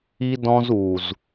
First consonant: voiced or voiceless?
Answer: voiced